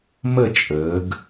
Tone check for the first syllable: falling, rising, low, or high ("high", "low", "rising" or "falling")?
falling